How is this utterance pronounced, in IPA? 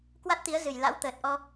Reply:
k w a˦˥ t̚ t̪ i˨˦ ə̯ z ɨ˨˩ j l a̰˧˥ w t̪ əː˨˩ t̚ ʔ ɔ˧

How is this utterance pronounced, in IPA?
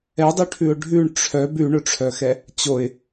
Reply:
ɛ dˤ y ʈʰ ʉ ʊ̯ ɖʱ ʉ ɳ ʈ͡ʂʰ œ b ʉ ɳ ɵ ʈ͡ʂʰ œ x ɛ | t͡ɕ o ɪ̯

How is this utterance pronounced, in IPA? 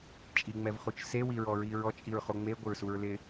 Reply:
t͡ʃʼ i ŋ͡m ɛ v χ u t͡ʃ s e w i ɹ ɔ ɹ i ɹ ɔ t͡ʃʼ i ɹ χ o ŋ͡m e ɡʷ ɪ ɹ s u ɹ l ɪ

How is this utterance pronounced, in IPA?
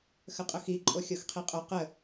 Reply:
x ə qʼ ʊ x i ǃʼ o xʲ o x qʰ i qʼ o q ə

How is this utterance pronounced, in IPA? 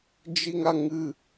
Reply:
d͡ʒ i ŋ a ŋ ɨ

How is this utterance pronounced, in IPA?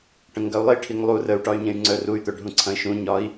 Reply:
ʈ ə̃ ŋ ɡ ɐ u̯ lˠ i ʈʰ i ŋ lˠ u r ə u̯ ʈ ɒ y̯ ɲ ẽ y̯ ŋ͡ǀ œ r u y̯ t̪ œ ɖʱ ũ ǀʰ ɐ̃ i̯ ʃ ũ ɲ ɒ i̯

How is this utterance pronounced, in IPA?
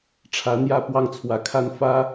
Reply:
ʈ͡ʂʰ ä˧˥ n̪ j ä˥˧ p w ɑ˥˩ ŋ t͡sʰ w ä˧˥ kʰ a˥˩ n f ä˥

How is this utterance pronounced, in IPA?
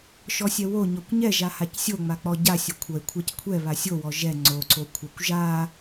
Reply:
ʃ ɔ sʲ ɛ w o ɲ ɔ kʷ ɲ ɛ ʒ a h a c sʲ o ŋ͡m a k͡p ɔ ɟ a sʲ o kʷʰ ʌ e̯ kʷʰ a c kʷʰ ɛ β a sʲ o w ɔ ʒ ɛ ŋ͡ǀ o ǀ o kʷʰ a kʷ ʒ a

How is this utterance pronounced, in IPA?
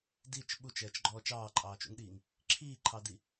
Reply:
d i t͡ʃ ɓ u t͡ʃ ɛː t͡ʃ ɡ͡ǃ ɔː t͡ʃ ɑː ǃʼ ɑː t͡ʃ ṵ ŋ ɗ iː ŋ | ǁʰ iː ǃʰ ɑ d i

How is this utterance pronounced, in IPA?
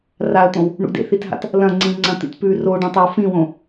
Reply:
r a ə̯ t̪ õ w | ɳ ṵ d ḛ θ i t ɦ a̰ t | l ɐ̃ ŋ͡ǀ ĩ ŋ͡ǀ ɐ̃ t̪ ḭ t p ʉ r o ɖ ɐ̃ tˤ e w f ĩ w õ

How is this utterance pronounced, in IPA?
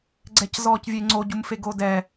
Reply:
ɡ͡ǀ ɛ c z ɔː c vʲ e ŋ͡ǀ o ɟ u m f e ɡ o d ɛ

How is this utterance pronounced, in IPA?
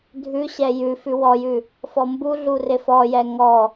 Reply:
dʱ ʉ ɕ ɛ j ʉ f ʉ w ɔ j ʉ | f ɔ m b u ɮ u r ɪ f ɔ j ɛ ŋ ɔ

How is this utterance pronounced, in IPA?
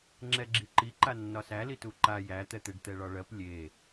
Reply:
ŋ͡ǁ ɛ ɡ͡ǁ i ǃ i ǃ a nː ɒ s æ l i t u ǃ a j æ t̪ ɛ t̪ e ɖ t̪ ɛ ɭ ɒ ɭ ɜ p lʲ e

